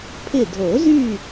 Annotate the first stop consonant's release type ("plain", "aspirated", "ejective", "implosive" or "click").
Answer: aspirated